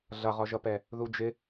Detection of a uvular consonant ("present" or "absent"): present